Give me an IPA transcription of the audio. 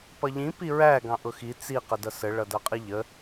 p ʌ ʎ ĩ p i ɹ æ ɡ ɑ̃ ʔ ʊ x i t͡s i q ə d ʌ s ə ɭ ʌ d ʌ qʼ i ʎ ə

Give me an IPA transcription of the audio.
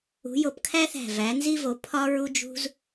ṳ˨˥ j o˧˩ p kʰ æ˥ θ æ̤˧˩ v æ˨˥ n z i˥ v o˨˥ pʰ ɒ˥ ɹ u˥ d͡ʒ ṳ˥ z

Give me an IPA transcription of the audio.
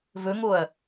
v ɵ ŋ o ɐ̯

